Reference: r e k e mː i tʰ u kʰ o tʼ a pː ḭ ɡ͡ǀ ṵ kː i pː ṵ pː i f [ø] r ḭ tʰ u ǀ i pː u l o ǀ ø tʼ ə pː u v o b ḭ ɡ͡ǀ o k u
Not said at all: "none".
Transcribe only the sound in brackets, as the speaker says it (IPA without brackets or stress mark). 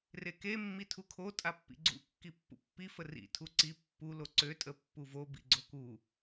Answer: ə